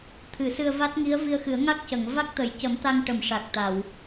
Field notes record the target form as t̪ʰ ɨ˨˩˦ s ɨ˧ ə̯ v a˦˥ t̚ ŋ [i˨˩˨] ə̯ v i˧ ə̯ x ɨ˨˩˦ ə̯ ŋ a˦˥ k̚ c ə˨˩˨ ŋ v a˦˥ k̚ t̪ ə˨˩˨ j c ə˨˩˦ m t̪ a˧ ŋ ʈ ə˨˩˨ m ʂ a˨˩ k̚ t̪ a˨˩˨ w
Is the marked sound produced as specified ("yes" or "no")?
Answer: no